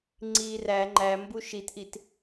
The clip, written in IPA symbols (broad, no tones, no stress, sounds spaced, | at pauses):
ŋ͡ǀ iː r æ ŋ͡ǃ æ m b u ʃ i t ʔ i t